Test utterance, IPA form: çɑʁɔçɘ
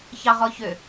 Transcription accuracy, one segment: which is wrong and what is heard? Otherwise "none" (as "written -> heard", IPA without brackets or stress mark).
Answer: ɘ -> ø